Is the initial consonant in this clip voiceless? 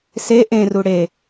yes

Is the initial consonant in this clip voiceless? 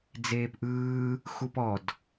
no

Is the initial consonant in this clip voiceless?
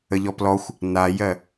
no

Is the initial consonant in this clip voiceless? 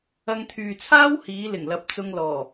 no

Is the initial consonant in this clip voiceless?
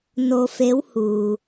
no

